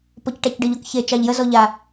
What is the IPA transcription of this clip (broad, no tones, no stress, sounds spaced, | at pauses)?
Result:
p ɔ c ʈ a c ɖ ə ʎ ɔ k ç e t͡ʃ ɑ ʎ j ə z ɔ ʎ a